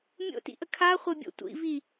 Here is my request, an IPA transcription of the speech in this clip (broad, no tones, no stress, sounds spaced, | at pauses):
mʲ o̰ t ḭ ʔ ə kʰ a χʷ e bʲ o̰ tʷ ḭ v i